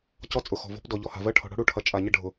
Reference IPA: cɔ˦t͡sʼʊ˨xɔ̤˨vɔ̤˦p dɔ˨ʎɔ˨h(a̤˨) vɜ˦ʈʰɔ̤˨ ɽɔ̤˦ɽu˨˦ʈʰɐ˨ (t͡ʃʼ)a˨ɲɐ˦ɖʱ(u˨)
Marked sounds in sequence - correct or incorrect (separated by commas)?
correct, correct, incorrect